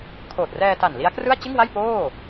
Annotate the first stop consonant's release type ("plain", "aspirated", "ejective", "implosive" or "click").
aspirated